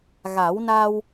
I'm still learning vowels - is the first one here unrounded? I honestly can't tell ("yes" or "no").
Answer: yes